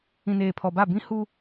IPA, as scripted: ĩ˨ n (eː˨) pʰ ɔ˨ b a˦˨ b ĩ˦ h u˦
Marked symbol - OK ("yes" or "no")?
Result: yes